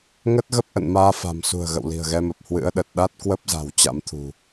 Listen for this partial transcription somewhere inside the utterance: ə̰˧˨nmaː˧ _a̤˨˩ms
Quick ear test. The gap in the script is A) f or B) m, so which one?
A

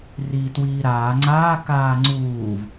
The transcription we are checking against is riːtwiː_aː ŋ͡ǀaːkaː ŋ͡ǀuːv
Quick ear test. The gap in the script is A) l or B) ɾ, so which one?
B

